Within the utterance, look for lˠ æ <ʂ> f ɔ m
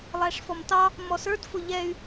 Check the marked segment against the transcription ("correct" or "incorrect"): correct